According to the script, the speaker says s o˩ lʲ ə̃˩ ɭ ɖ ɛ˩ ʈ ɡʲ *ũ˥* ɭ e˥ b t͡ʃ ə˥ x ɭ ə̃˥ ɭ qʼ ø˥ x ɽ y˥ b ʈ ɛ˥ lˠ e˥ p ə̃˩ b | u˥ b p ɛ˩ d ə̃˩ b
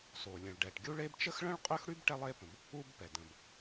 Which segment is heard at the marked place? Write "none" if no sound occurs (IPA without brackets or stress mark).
u˥